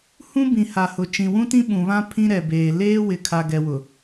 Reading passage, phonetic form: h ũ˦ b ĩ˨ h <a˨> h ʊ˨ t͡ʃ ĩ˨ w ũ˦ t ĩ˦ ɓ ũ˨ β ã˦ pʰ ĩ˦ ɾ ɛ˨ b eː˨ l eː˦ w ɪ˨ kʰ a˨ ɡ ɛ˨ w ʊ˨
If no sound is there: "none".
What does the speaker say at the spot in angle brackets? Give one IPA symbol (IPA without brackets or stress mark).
a˨